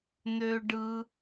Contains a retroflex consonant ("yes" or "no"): yes